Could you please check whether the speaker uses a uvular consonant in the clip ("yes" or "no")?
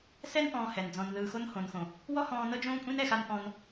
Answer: no